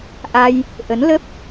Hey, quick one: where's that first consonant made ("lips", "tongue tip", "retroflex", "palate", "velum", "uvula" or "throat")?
throat